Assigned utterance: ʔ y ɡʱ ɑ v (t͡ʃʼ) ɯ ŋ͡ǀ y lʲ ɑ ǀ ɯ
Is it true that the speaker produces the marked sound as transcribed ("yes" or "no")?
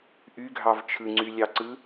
no